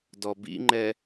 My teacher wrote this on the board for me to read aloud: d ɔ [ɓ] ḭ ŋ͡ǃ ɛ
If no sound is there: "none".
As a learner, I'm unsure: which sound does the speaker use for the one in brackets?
b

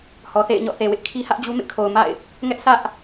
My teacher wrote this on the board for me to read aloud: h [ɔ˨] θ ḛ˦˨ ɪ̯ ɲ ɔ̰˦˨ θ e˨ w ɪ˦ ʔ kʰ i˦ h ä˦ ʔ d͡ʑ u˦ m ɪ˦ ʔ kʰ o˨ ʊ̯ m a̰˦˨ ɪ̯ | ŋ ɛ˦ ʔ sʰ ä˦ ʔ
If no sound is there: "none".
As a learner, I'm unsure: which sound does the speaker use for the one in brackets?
ɔ˨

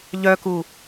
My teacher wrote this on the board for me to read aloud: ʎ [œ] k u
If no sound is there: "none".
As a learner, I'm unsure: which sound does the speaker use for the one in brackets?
œ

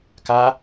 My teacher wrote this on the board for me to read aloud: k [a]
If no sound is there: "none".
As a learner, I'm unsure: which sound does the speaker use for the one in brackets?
a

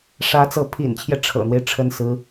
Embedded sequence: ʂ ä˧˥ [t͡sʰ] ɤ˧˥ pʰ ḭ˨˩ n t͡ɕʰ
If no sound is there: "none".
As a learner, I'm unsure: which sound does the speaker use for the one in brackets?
t͡s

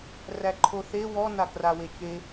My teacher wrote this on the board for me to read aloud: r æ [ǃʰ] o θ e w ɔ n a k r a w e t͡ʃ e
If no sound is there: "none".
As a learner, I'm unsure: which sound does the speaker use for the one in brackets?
ǃʰ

